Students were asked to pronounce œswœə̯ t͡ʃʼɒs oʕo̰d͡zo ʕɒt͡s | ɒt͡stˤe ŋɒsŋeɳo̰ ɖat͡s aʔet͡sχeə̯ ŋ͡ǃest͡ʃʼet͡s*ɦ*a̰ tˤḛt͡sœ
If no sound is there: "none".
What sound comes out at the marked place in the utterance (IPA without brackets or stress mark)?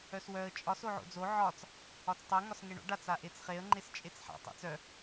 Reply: ħ